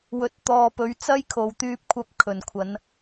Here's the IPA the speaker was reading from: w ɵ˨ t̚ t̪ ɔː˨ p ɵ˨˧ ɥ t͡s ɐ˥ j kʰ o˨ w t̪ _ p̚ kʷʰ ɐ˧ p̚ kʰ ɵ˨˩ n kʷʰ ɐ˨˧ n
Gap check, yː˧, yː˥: yː˧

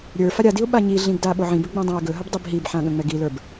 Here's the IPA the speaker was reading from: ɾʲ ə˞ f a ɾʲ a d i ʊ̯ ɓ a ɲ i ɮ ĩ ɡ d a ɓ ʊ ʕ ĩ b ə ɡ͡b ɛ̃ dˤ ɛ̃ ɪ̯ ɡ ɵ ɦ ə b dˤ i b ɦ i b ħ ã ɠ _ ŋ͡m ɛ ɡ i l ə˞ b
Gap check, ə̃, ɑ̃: ə̃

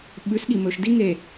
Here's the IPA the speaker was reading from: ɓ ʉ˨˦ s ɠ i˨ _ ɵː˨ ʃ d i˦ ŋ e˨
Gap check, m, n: m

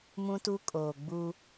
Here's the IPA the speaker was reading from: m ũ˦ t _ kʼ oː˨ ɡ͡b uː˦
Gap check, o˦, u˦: u˦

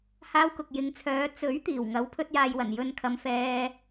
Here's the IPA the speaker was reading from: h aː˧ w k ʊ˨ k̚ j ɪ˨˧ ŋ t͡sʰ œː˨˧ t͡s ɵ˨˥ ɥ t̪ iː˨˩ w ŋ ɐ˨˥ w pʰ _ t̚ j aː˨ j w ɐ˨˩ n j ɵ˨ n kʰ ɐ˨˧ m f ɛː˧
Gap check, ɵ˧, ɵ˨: ɵ˧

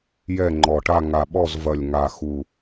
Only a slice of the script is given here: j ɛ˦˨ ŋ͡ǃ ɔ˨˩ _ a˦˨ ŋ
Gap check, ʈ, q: ʈ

